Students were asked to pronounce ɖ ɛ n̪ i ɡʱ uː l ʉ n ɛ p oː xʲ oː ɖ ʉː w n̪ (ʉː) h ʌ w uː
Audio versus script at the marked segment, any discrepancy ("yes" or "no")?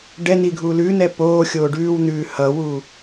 no